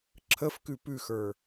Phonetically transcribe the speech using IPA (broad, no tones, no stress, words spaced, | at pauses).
ǁʰəfkʉ pʉxə˞